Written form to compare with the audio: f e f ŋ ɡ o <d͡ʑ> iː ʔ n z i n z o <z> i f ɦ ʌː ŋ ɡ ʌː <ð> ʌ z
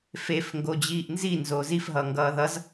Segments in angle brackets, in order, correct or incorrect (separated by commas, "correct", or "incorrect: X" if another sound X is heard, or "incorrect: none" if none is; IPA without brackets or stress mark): correct, correct, correct